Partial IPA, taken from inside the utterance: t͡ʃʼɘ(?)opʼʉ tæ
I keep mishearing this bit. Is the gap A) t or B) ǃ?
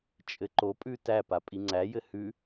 B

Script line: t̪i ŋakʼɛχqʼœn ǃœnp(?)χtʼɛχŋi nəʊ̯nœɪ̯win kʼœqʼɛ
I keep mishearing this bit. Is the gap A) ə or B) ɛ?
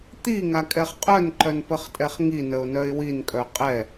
A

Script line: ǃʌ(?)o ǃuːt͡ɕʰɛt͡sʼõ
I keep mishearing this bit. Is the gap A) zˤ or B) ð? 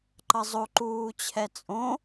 A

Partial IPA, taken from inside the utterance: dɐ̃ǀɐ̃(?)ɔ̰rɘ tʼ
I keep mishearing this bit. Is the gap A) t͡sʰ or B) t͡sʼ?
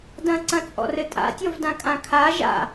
B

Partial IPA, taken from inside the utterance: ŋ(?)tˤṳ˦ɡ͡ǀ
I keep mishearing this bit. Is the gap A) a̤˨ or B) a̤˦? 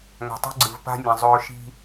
A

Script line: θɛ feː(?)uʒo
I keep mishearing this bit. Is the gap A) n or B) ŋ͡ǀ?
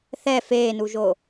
A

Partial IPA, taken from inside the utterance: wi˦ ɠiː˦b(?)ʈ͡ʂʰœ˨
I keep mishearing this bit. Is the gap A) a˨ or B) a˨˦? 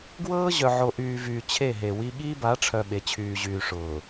B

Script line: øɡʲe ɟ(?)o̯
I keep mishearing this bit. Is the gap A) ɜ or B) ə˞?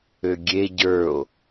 B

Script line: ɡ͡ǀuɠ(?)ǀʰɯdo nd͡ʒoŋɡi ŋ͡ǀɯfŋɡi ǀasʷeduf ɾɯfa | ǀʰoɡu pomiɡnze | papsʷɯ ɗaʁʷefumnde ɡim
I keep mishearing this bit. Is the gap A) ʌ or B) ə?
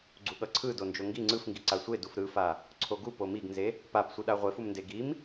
A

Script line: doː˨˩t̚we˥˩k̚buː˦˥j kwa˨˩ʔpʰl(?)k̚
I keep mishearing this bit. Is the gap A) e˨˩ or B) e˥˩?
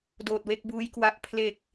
A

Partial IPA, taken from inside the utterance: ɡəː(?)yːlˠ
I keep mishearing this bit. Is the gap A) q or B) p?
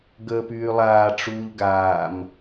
B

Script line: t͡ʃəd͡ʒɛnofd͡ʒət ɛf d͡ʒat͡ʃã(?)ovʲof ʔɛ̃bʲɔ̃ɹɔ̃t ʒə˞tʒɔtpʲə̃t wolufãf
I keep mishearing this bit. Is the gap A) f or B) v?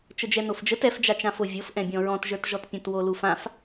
A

